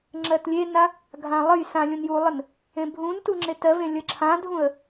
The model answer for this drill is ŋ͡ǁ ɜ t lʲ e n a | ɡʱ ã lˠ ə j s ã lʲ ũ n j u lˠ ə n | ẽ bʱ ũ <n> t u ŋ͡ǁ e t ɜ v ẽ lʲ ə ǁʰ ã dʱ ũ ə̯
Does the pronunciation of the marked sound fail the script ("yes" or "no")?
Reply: no